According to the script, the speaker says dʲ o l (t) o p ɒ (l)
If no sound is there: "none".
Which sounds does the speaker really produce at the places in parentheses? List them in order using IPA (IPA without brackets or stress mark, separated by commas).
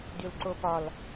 ǀ, l